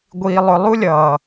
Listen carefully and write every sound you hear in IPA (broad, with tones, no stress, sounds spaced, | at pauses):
ɡʷ iː˧ lˠ ʊ˧ lˠ u˦ lʲ ʌː˨